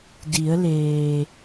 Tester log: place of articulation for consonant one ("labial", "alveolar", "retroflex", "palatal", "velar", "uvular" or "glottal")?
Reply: alveolar